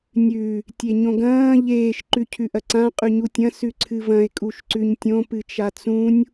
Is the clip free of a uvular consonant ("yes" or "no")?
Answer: no